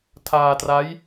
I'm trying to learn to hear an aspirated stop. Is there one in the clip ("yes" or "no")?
yes